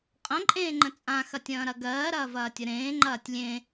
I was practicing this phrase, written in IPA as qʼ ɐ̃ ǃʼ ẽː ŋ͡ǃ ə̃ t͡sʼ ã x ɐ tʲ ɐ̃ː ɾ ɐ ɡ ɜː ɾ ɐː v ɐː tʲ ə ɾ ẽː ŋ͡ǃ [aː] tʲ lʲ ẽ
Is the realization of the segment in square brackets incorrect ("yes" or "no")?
yes